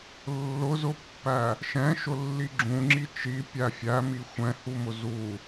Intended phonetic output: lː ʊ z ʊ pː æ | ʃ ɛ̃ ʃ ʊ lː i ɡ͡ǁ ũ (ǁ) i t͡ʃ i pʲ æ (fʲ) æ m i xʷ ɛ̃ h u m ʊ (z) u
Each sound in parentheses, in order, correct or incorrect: incorrect, correct, correct

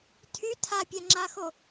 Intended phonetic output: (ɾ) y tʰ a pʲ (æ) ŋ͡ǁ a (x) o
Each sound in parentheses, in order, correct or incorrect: incorrect, incorrect, correct

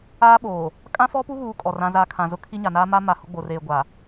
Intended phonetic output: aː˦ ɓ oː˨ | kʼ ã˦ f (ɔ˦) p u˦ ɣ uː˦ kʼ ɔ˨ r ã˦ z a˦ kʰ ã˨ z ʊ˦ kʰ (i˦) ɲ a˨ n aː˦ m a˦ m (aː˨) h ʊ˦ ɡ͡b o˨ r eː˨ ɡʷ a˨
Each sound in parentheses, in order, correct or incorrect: correct, correct, incorrect

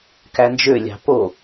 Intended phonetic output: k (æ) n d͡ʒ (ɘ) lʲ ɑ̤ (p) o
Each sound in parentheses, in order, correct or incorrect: correct, incorrect, correct

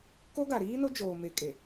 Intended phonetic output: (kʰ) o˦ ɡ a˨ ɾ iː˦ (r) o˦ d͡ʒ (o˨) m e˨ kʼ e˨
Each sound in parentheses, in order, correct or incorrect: incorrect, incorrect, incorrect

